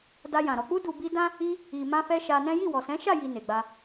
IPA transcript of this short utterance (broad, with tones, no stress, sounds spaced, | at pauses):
d a˧ j ã˨ ɾ ɔ˨ k͡p u˧ d u˨ b i˧ d ã˦ | i˧ | i˨ m ã˧ f ɛ˧ ʃ a˧ n ɛ̃˦ j i˦˨ w ɔ˨ s ɛ̃˨˦ ʃ a˦˨ j i˨ n e˨ ɡ͡b a˧